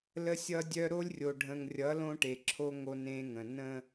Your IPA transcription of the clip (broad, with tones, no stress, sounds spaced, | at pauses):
l ə˦ sʲ ʌ˦ dʲ œ˦ ɾ o˦ lʲ rʲ o˨ ɖʱ ə̃˨ ŋ rʲ ʌ˨˦ l õ˦ ʈ e˨ ǁʰ o˦ ŋ o˦ n ẽ˦ ŋ ə̃˨ n ə̃˦